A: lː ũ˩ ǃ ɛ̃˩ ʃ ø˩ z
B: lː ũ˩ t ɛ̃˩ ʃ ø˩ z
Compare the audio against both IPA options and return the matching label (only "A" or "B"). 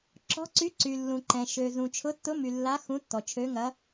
A